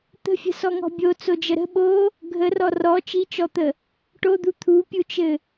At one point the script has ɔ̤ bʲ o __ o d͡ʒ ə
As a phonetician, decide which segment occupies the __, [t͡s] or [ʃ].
t͡s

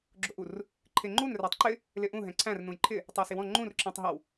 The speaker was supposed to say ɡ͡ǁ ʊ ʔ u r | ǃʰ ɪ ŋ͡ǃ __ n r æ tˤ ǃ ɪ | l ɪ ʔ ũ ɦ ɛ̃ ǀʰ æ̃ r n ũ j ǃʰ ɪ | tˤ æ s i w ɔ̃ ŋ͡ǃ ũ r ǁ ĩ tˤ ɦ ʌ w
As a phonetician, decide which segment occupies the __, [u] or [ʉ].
u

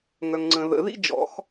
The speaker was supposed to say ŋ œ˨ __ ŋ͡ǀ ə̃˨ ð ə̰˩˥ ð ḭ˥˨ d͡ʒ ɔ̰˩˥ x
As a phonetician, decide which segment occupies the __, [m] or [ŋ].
ŋ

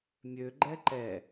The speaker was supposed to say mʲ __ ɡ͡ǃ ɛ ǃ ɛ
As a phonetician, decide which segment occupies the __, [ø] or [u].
ø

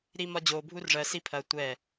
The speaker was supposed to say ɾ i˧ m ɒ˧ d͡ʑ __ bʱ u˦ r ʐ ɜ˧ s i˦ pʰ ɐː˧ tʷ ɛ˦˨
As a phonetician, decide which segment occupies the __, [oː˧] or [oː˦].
oː˧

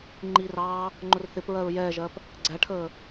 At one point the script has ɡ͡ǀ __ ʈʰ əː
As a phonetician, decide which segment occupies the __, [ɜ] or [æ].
æ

